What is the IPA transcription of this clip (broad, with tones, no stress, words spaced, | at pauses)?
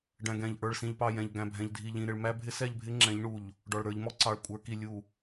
ɖæ̃˨ɡɛ̃˨ʎ ʔə˞˨ɭsĩ˨ʎpɑ˨ jɛ̃˨ʎɡæ̃˨bʱɛ̃˨ʎ dʱi˨ʎĩ˨ ɾɪ˨ɭmæ˦bʱɪ˦ sɛ˦˨ʎbʱɪ˦ ŋ͡ǁɛ̃˨˦ʎɳu˨ʎ | ɖɔ˨ɭɾə˞˨˦ʎmɔ˦ ǀɑ˨ɭkʷʼə˞˨˦ki˨ lʲu˨